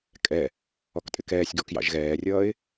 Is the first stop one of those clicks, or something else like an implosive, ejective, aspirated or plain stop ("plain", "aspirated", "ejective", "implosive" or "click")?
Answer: ejective